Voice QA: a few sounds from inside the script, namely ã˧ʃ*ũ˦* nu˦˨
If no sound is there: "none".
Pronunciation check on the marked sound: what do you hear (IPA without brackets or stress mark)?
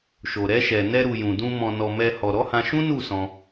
ũ˦